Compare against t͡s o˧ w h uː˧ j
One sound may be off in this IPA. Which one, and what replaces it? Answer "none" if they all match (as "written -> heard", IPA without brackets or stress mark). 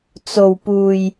h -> p